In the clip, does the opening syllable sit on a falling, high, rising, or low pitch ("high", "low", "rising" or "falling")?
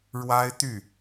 high